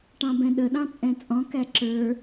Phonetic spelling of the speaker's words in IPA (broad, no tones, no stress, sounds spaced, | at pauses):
ʈ ɑ̃ b ɛ̃ ɗ ə ɗ ɑ̃ t͡sʼ ɛ̃ t͡sʼ ɔ̃ k æ ǁ ə˞